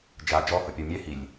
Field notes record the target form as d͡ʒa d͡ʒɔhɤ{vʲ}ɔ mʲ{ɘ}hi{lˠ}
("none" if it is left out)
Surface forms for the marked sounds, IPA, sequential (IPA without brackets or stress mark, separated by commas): pʲ, ɛ, lʲ